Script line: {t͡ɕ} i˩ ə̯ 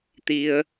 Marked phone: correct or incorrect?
incorrect